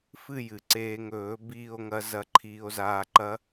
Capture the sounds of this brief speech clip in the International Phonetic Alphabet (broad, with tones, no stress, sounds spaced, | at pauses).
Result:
f ɨ˥˧ j ɨ˩ ǀ eː˧ ŋ ɵː˨˩˦ b iː˥˧ o̯ ŋ ɐ˦˥ z ɐ˧ ǃʰ iː˧ o̯ z aː˧ ǃ ɐ˦˥